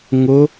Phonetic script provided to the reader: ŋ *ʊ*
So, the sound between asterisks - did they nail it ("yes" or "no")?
yes